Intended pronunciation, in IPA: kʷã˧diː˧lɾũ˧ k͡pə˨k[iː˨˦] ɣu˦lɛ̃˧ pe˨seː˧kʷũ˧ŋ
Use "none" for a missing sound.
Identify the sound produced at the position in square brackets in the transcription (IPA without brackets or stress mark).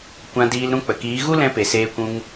iː˨˦